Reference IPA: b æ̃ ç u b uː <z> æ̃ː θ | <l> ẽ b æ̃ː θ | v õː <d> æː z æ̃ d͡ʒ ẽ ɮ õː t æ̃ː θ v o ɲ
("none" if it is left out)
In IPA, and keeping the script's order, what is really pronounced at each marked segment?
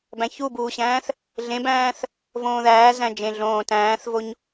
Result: ɕ, ɮ, ð

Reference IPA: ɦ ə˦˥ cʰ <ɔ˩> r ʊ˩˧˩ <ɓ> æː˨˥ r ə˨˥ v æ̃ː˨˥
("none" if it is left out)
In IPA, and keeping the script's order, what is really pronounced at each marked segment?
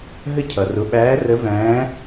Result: ʌ˩, ɓ

